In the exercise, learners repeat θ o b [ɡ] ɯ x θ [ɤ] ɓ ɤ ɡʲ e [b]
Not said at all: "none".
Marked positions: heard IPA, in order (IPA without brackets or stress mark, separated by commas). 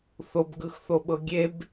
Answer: ɡ, o, b